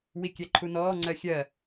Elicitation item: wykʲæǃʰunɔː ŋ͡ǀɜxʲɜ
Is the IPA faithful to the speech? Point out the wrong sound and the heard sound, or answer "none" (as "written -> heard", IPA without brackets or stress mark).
y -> i